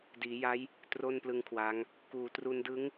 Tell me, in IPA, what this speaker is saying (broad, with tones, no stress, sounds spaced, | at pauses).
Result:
d iː˩˦ j a˦˥ j | t r o˥˩ n p l ɯ˦˥ ŋ kʰ w a˦˥ ŋ | k uː˩˦ t r u˧ n d ɯ˦˥ ŋ